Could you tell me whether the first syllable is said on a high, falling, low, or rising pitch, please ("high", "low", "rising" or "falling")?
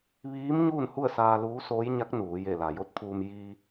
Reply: rising